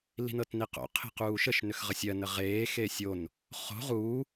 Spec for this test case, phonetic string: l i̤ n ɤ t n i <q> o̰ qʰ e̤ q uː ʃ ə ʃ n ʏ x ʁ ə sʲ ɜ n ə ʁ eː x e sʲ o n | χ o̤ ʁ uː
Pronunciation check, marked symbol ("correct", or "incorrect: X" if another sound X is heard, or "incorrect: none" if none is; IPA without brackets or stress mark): correct